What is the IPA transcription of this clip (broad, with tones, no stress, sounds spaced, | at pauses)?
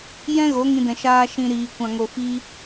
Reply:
j ɛ̃˦ ɣ o˨˦ ŋ ĩ˧ d ɛ̃˨ ʃ aː˧ ʃ ĩ˨ ɾ iː˨ kʷ ã˨ ŋ o˨ f iː˧